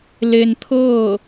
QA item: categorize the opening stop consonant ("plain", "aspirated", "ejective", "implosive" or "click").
aspirated